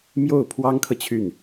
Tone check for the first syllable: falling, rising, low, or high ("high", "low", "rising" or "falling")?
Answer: falling